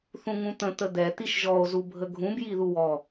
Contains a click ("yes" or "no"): no